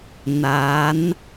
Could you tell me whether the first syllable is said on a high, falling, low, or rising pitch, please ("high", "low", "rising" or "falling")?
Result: rising